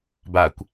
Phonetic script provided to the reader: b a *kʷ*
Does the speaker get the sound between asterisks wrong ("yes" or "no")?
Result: no